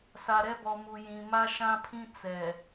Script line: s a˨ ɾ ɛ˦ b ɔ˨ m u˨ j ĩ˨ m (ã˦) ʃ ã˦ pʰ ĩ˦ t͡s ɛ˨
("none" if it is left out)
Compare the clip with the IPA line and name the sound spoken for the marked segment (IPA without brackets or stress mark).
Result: a˦